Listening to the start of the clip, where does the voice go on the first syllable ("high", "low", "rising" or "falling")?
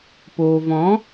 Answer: low